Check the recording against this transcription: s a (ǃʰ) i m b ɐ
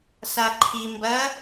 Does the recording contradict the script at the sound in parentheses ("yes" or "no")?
no